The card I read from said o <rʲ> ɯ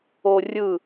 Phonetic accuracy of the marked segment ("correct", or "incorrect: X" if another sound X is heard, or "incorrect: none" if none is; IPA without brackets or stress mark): correct